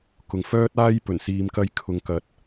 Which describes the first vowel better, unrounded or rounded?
rounded